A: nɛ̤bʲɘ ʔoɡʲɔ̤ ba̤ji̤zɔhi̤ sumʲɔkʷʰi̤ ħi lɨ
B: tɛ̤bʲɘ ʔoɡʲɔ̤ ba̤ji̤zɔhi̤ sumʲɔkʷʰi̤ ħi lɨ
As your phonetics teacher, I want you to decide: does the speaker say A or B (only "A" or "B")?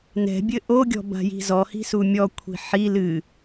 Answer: A